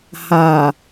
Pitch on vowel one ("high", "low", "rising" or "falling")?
low